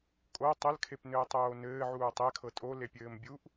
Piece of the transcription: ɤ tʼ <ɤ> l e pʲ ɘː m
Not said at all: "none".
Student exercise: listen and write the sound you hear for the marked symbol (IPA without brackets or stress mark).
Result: o